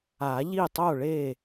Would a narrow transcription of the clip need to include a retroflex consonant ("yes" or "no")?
yes